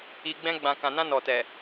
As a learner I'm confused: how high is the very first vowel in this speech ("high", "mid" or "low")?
high